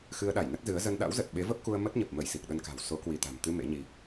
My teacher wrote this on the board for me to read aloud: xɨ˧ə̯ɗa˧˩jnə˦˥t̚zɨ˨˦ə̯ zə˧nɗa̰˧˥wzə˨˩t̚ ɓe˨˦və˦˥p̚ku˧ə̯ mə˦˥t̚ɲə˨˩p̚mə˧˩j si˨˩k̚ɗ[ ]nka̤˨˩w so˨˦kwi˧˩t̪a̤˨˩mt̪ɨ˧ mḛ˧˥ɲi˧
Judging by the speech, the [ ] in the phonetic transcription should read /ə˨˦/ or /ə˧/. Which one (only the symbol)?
ə˧